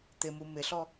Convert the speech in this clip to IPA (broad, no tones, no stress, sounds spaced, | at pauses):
t̪ ɪ m u m ɪ ɬ ɔ